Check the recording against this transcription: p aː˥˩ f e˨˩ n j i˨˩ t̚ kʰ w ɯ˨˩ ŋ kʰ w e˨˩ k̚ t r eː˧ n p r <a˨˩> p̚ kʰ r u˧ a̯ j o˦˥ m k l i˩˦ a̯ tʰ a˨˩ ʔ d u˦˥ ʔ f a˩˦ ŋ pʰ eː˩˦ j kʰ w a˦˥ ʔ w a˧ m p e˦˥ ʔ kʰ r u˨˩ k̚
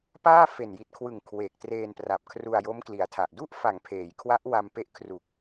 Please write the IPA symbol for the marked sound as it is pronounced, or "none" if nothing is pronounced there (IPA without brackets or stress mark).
a˨˩